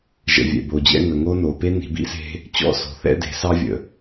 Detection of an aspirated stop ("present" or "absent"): absent